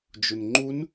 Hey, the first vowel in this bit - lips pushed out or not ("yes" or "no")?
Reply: yes